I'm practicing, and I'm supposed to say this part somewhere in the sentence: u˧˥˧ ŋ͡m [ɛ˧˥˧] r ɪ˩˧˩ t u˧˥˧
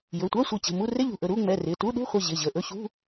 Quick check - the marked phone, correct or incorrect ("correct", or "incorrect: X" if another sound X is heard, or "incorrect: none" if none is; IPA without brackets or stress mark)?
incorrect: ɛ˩˧˩